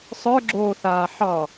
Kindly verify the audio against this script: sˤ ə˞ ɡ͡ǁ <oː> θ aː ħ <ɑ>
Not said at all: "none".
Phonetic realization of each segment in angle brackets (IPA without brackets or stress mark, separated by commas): oː, ɑ